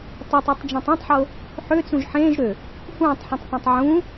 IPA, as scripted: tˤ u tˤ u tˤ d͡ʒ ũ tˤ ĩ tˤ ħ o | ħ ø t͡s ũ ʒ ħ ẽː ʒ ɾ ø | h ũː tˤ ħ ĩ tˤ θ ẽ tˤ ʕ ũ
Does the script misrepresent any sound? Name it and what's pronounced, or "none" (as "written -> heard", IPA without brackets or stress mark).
none